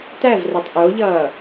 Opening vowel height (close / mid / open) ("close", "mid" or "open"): open